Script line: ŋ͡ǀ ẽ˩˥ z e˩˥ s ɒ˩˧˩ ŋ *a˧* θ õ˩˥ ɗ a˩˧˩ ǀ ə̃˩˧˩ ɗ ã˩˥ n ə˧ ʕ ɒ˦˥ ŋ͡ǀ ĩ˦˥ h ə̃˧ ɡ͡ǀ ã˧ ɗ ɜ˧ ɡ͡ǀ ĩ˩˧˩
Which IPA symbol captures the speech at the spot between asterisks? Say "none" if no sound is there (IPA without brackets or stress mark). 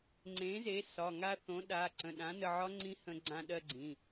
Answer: a˧